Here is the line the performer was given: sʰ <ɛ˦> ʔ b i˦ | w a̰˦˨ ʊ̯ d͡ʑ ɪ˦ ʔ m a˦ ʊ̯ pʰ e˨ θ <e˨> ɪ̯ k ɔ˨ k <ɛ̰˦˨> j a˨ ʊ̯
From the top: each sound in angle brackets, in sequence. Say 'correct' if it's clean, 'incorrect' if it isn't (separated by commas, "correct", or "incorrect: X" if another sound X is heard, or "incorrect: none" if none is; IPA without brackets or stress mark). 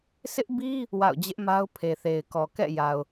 incorrect: ɪ˦, correct, correct